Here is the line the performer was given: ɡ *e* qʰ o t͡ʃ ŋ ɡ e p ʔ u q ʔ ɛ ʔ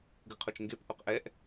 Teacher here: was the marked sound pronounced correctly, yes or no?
no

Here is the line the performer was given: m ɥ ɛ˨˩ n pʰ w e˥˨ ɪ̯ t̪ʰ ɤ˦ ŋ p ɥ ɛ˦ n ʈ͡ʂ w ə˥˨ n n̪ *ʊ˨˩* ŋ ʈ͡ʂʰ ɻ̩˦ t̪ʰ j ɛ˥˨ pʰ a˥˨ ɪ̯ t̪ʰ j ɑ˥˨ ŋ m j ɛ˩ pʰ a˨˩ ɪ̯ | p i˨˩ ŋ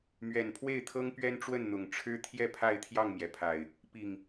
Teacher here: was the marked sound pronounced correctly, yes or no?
yes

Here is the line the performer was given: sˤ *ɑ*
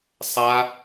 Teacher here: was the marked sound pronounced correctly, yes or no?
no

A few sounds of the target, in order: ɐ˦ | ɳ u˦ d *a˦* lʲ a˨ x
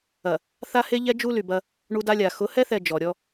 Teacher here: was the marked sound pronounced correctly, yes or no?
yes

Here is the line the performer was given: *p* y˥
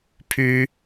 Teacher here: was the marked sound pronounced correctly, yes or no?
no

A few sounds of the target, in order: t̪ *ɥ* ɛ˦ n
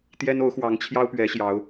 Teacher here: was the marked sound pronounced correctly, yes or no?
no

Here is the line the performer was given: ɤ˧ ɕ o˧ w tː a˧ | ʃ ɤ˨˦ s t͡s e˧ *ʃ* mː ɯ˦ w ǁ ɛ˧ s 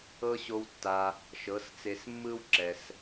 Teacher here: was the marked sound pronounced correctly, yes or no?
no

